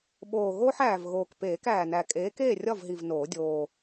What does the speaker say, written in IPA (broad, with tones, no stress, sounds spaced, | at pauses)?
ɓ oː˨˩ ɣ oː˦ ħ æː˨˩ v ɣ oː˨˩ k p eː˨˩˦ k æː˨˩ n æ˨˩ kʼ eː˨˥ k eː˥˨ rʲ ɒ˥˨ v ɦ i˨˩ v n oː˨˩˦ dʲ oː˨˩